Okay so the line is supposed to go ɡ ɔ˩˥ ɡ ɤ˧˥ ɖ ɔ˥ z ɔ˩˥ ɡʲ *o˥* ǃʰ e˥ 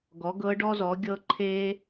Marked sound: incorrect: ɤ˥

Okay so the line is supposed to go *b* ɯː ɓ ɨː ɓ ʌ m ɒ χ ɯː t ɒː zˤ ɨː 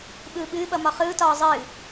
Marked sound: incorrect: ɓ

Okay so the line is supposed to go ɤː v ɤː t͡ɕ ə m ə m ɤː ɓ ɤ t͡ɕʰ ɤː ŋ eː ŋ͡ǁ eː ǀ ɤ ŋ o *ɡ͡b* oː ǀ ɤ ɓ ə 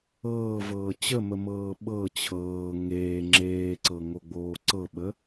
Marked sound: correct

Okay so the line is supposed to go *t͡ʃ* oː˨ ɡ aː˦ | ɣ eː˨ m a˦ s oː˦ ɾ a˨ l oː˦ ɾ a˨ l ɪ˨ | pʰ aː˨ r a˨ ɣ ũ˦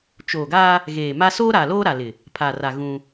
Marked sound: correct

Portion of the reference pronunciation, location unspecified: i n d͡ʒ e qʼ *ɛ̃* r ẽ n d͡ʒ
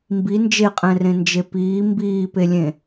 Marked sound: correct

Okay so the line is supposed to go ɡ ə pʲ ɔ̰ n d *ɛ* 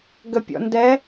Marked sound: correct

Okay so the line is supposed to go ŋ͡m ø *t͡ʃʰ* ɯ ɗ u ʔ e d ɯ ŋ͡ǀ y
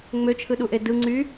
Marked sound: correct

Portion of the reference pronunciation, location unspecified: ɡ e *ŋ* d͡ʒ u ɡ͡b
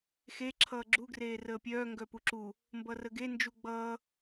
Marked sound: incorrect: n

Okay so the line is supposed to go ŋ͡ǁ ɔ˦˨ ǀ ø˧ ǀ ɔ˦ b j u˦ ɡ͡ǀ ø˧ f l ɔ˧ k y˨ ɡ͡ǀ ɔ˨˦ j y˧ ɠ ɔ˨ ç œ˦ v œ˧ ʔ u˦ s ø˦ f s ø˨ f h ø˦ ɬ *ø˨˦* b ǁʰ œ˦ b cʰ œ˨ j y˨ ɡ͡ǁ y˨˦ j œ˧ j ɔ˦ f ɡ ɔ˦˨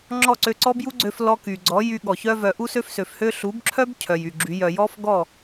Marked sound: incorrect: u˨˦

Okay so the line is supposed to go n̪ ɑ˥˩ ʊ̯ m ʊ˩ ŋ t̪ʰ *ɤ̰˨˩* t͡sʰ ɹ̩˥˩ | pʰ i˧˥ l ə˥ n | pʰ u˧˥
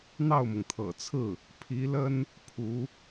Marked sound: correct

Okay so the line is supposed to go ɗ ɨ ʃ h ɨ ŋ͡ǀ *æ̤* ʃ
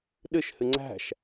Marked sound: correct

